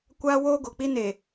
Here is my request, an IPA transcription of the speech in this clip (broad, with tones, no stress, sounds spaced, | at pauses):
kʷ aː˦ w oː˦ ɡ o˨ k͡p i˦ n e˨